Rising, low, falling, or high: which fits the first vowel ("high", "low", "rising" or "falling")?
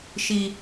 high